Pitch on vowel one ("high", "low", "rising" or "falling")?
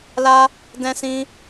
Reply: high